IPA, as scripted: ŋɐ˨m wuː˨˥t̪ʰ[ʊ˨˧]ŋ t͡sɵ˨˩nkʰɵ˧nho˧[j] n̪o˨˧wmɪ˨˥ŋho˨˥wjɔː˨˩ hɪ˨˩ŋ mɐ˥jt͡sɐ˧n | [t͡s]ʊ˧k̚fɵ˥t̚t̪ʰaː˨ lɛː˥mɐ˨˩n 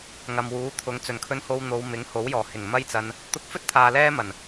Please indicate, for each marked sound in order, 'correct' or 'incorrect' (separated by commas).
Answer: correct, incorrect, incorrect